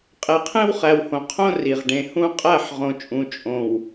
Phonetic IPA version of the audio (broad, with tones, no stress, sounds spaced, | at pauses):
qʼ e˨ qʰ ẽ˦ w χ æ˨ w h õ˨ qʰ õ˦ r i˨ ʁ ɖ ẽ˨ h ũ˦ qʼ æ˦˨ ħ ʁ õ˨ t͡ʃʼ ũ˨ t͡ʃʼ õ˨ w